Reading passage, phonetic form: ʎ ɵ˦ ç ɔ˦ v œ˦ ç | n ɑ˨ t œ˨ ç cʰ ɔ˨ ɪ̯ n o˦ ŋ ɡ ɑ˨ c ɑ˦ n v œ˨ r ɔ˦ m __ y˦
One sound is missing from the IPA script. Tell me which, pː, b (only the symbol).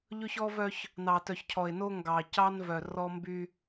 b